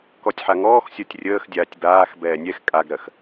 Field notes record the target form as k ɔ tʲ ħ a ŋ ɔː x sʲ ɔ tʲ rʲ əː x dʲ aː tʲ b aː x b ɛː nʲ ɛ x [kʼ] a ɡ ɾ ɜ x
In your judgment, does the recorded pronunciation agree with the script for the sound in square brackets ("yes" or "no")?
yes